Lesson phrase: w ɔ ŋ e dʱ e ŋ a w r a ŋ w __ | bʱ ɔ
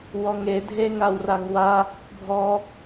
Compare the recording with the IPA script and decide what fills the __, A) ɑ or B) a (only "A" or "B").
B